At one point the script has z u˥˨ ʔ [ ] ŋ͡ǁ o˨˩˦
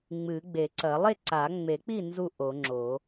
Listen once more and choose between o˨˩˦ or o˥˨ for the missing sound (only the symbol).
o˨˩˦